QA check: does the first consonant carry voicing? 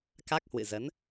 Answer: no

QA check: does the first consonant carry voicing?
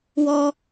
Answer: yes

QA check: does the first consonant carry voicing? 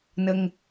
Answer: yes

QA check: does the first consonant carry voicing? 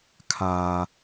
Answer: no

